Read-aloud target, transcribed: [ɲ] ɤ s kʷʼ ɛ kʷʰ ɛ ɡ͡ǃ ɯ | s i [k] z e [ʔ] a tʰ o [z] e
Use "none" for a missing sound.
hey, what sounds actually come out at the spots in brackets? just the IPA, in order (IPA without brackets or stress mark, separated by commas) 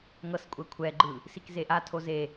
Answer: ŋ, k, ʔ, z